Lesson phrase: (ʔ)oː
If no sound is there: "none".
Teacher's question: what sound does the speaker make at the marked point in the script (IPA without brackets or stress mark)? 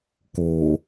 k